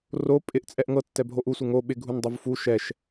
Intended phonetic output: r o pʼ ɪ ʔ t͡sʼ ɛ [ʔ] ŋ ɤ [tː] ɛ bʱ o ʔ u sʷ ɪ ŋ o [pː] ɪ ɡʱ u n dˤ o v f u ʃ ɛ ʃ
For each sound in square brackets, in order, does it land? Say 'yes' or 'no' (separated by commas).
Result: yes, yes, no